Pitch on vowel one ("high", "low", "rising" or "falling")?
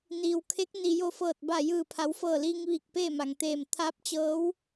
low